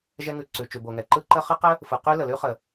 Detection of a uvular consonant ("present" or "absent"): present